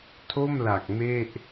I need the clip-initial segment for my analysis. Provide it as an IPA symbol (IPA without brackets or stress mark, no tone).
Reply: tʰ